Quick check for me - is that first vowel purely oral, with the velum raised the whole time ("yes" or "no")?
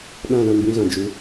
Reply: no